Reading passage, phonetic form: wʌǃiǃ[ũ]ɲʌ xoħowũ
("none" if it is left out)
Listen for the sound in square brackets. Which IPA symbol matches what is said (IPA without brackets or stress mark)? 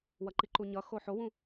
u